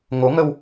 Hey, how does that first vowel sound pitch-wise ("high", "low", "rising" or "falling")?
rising